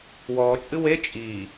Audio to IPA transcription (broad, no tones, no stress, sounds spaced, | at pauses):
w ɔː t͡ʃʼ ɨ w e t͡ʃʼ i